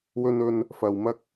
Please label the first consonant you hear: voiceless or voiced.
voiced